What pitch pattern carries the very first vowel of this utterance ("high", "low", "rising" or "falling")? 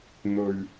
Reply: low